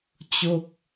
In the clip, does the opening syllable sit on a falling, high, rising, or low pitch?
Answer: falling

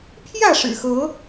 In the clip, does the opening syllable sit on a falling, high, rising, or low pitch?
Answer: falling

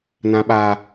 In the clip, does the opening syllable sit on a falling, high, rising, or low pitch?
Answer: high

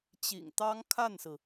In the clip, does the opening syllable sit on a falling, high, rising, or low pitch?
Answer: low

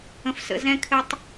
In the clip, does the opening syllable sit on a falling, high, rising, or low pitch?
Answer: low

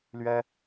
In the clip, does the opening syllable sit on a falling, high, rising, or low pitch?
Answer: high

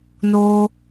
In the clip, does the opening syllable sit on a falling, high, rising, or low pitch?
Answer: high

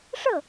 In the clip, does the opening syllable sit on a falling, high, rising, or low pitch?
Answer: falling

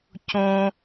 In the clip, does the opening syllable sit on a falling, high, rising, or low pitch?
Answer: low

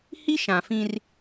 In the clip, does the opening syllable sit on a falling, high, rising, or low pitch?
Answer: high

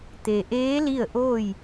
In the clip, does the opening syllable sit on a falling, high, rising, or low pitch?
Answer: low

